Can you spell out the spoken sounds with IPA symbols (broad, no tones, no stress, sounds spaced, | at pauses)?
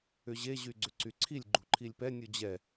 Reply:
ʏ ʑ e ʑ y ɡ͡ǀ ʏ ǀ y ǀʰ i lʲ ɡ͡ǃ ṳ ǃʰ i lʲ p ɛ nʲ u d͡ʑ ɛ